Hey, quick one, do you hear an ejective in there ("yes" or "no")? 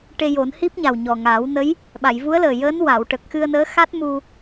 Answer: no